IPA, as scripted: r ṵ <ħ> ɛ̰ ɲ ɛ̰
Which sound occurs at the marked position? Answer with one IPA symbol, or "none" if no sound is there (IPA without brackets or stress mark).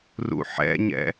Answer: ħ